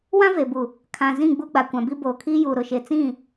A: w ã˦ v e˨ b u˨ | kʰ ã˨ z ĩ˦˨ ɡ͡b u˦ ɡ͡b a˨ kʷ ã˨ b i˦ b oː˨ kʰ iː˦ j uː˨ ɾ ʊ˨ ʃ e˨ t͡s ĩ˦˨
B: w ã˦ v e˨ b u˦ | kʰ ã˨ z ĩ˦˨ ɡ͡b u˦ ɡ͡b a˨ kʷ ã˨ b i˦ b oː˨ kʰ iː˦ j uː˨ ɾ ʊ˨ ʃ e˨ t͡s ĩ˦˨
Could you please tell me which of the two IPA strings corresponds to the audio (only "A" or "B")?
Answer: A